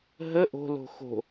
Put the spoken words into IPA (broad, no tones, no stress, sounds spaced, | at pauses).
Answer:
ɦ ə ʔ o̤ l o̤ x o̤